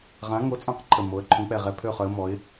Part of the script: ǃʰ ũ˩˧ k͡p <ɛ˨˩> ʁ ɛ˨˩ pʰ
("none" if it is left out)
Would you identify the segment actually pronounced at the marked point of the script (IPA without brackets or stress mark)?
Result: ɛ˨˩